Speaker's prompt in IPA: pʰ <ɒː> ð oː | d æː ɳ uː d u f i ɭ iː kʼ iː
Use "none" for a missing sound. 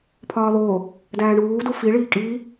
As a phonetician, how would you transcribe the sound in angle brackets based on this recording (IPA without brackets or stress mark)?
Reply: ɒː